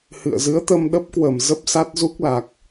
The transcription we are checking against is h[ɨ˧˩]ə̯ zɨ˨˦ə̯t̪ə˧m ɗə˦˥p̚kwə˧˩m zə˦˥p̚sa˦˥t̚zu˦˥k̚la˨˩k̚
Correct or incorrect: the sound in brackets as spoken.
incorrect: ɨ̰˧˨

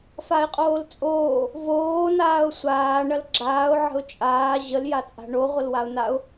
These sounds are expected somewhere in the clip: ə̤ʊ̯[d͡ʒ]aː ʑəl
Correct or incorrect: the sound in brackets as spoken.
incorrect: t͡ʃʼ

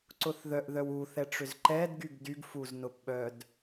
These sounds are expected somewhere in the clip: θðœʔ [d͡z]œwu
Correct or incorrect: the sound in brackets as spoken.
incorrect: ð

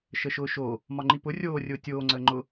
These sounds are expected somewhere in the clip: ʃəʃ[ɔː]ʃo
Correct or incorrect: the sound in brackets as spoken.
incorrect: ʊː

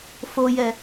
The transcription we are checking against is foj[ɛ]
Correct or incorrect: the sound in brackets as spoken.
correct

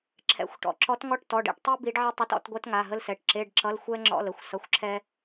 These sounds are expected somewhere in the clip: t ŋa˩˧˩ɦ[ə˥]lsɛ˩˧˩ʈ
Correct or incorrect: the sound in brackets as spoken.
correct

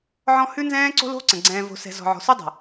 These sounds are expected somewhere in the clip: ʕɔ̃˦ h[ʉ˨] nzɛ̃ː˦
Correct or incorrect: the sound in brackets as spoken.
incorrect: ʉ˦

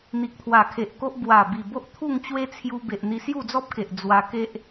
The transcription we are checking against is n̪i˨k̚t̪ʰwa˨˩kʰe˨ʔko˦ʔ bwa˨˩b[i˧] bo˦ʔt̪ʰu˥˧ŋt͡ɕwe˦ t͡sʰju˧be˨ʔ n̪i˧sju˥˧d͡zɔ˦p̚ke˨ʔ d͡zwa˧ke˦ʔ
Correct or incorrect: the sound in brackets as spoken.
incorrect: i˨˩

